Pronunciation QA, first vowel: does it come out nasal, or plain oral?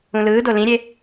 nasal